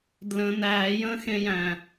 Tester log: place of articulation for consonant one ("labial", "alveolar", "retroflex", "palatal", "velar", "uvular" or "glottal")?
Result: alveolar